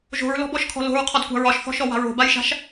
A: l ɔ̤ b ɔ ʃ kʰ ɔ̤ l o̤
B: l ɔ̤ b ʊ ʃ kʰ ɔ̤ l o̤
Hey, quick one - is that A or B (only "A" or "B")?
A